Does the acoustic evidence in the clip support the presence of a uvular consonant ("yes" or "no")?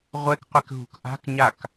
yes